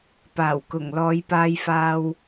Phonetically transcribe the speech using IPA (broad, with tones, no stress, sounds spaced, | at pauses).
p aː˨˩ w k ʊ˨˩ ŋ l ɔː˨ j p aː˧ j f aː˧ w